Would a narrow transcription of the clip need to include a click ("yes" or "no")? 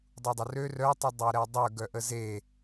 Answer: no